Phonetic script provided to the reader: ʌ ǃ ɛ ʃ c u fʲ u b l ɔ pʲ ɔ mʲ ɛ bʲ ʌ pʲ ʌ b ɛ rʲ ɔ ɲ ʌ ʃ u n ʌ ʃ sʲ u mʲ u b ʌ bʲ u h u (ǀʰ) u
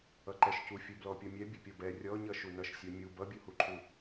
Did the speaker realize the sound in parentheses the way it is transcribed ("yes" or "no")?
no